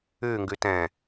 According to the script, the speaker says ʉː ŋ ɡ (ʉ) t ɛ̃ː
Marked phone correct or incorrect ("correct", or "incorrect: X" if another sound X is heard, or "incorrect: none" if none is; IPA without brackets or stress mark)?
correct